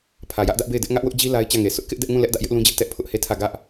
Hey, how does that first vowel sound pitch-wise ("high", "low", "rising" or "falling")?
low